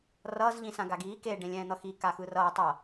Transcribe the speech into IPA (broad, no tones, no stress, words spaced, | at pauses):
rʌːz ʎĩsãɡaɡiː ke ɖẽlʲɛ̃ːn̪ʌxi kaxɯrʌː tˤʌ